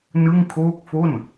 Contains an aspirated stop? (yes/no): yes